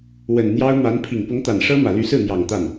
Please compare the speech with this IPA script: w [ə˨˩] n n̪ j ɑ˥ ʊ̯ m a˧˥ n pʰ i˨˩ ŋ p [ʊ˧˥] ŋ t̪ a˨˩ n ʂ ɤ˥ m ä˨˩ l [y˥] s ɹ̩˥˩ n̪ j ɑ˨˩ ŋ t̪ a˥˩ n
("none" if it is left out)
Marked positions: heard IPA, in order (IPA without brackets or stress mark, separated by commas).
ə˨˩, ʊ˧˥, y˧˥